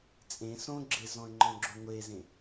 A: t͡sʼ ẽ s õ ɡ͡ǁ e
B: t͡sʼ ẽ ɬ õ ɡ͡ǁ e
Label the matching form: A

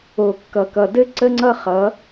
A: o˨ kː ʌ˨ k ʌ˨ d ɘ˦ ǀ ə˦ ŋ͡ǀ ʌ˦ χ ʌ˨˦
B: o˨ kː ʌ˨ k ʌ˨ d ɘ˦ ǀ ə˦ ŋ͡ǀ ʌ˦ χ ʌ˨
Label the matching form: A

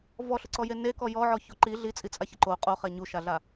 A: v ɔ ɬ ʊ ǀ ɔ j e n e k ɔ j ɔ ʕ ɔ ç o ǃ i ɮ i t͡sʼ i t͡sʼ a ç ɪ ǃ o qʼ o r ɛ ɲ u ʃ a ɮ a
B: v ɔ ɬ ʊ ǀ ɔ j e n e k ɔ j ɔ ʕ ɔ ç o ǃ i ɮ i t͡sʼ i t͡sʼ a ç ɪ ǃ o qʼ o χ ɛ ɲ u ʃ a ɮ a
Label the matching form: B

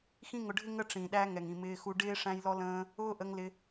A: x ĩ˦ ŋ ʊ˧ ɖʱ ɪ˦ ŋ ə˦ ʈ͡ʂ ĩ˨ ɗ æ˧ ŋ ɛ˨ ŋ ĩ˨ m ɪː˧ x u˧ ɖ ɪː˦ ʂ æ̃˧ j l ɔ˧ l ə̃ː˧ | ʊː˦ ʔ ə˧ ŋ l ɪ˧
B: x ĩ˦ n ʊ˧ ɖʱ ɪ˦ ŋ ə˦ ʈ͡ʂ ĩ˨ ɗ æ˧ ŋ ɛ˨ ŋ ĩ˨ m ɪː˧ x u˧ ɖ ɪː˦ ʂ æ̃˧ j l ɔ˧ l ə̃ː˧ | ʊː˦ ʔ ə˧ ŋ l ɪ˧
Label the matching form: A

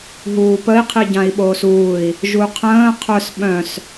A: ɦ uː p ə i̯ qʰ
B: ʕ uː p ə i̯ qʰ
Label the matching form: A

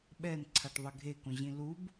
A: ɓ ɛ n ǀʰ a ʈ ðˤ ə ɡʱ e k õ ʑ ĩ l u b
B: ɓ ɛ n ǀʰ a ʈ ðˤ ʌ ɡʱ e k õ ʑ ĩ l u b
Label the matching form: A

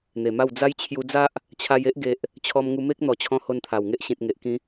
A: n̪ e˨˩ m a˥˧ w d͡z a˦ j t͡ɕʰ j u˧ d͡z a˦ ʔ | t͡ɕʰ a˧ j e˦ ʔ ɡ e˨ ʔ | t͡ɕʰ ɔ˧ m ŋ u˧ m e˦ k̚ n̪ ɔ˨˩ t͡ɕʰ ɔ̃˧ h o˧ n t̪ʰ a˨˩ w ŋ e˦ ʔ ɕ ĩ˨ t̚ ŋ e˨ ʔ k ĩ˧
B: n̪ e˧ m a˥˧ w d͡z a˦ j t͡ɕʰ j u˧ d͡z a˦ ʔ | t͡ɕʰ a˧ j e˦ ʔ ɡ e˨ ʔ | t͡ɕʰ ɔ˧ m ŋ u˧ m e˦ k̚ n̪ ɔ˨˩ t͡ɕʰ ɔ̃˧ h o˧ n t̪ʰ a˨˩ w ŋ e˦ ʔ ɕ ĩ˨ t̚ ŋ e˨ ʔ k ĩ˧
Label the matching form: A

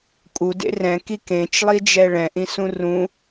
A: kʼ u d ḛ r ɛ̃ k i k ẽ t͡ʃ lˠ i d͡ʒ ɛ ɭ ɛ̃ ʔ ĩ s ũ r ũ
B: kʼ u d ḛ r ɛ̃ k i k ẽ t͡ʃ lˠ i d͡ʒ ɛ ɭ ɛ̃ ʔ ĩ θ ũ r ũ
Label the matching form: A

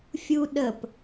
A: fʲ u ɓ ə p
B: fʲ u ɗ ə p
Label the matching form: B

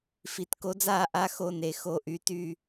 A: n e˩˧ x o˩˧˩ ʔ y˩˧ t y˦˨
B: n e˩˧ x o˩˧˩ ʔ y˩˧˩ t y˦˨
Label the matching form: B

